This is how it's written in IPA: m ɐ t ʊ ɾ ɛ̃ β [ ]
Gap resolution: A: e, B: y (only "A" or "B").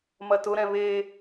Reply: A